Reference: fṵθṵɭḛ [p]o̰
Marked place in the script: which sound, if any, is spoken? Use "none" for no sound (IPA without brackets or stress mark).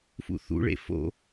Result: f